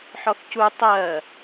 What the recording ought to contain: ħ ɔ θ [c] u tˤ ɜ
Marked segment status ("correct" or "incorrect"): correct